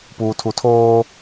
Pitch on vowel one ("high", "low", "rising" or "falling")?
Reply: low